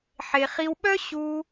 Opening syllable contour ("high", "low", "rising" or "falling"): high